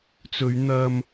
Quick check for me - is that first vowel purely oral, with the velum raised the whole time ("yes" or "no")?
yes